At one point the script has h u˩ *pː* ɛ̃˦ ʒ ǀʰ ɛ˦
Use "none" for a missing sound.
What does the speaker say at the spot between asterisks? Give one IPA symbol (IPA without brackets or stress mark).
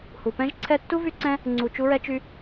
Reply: p